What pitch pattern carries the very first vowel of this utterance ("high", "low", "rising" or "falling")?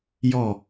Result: falling